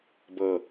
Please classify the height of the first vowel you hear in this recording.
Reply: mid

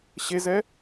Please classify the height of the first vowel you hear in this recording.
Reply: mid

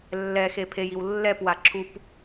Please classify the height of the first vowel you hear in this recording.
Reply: mid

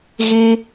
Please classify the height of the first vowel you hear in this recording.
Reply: high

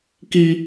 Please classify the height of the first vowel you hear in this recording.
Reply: high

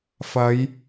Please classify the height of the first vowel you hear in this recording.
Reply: low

